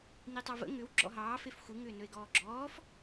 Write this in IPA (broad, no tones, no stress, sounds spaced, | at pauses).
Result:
n i tˤ ɑ v ə̰ ŋ ʏ w ɡ͡ǁ ɔ̰ ɦ ɑː f e f xʷ ɨ ŋ ʏː n ɵ e̯ ɡ ɔː ɡ͡ǁ ɔː f